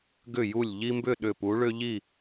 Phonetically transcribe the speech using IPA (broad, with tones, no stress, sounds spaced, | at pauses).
ɡ ʏ˧˩ j u˧˩ lʲ ʎ i˦ m b ʏ˥˨ ɗ ʏ˧˩ p u˨˥ ɭ ʏ˦ ʎ i˥˨